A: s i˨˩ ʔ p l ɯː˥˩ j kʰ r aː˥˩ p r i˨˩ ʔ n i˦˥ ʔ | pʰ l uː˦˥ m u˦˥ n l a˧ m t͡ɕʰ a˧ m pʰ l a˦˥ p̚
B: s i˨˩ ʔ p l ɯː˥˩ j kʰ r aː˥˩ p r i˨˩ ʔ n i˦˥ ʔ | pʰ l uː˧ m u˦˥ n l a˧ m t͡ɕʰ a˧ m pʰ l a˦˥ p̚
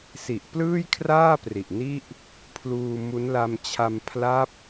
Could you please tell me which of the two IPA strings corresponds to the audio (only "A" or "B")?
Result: B